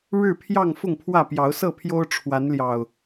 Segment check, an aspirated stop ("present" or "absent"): present